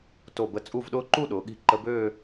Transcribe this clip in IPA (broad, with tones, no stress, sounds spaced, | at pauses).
t o˧˩ b ə˧˩ t͡sʼ u˥˧ v ɗ ʊː˥ ǃ u˥˧ ɗ ʊː˩˧ ɠ i̤˧˩ ǃ ə˧ b øː˥˧